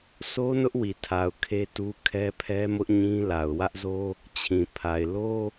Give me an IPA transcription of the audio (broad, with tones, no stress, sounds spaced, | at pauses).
s o˦ n ʊ˦ ʔ w i˨ tʰ a˨ ʊ̯ kʰ e˦ t u˦ kʰ ɛ˦ pʰ ɛ˦ m ʊ˦ ʔ ɲ ĩ˦ l a˨ ʊ̯ w ä˦ ʔ z o˦ | t͡ɕʰ ĩ˨ pʰ a˨ ɪ̯ l o˦